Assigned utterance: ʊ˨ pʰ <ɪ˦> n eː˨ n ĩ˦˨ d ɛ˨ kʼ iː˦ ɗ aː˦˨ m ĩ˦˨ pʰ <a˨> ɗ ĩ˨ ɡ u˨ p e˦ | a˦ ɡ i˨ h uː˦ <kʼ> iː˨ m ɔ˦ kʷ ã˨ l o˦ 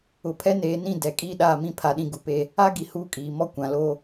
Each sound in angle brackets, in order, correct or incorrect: incorrect: ɛ˦, correct, correct

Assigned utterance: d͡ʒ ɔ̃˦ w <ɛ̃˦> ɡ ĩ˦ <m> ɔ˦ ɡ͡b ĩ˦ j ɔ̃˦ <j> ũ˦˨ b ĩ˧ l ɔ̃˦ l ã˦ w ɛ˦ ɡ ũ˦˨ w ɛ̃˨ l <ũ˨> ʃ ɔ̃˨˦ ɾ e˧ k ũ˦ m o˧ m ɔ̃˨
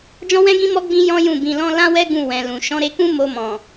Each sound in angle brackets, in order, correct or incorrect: correct, correct, correct, correct

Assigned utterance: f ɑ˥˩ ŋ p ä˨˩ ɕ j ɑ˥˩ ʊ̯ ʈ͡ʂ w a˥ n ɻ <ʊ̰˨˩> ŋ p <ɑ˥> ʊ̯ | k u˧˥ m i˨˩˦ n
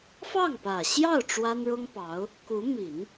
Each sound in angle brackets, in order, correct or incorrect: incorrect: ʊ˥, incorrect: ɑ˧˥

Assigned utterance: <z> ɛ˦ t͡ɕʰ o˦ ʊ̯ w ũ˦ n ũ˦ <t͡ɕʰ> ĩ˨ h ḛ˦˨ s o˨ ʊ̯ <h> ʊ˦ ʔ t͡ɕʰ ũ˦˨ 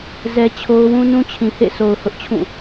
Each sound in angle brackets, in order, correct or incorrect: correct, correct, correct

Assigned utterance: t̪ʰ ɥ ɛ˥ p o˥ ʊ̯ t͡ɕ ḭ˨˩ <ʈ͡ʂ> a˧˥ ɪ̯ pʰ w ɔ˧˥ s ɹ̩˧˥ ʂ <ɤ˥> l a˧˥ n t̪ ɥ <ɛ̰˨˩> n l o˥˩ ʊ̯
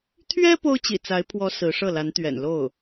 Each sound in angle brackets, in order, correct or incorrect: incorrect: t͡s, incorrect: ɤ˥˩, correct

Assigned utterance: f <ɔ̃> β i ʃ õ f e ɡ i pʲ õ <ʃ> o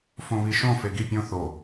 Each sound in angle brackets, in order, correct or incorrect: incorrect: õ, incorrect: θ

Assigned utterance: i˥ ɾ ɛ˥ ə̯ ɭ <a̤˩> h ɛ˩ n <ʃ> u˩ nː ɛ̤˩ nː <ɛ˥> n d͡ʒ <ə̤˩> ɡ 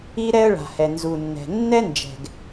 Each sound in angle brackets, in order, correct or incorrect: correct, incorrect: z, correct, incorrect: ɛ̤˩

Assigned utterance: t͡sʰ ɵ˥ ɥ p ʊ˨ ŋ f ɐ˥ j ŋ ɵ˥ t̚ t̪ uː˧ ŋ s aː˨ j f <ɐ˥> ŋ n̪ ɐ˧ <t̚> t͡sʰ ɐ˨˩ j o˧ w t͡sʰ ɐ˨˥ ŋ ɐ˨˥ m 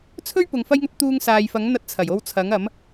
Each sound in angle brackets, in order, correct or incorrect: incorrect: ɐ˨˥, correct

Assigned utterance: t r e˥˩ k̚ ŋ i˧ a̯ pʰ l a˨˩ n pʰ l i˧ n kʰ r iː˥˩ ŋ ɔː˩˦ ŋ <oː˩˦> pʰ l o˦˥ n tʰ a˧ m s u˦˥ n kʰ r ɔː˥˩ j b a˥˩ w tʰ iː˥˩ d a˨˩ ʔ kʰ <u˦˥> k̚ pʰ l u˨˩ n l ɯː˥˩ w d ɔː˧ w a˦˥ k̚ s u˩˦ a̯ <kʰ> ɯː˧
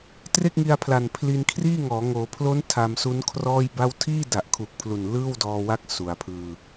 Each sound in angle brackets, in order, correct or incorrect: correct, incorrect: u˨˩, incorrect: pʰ

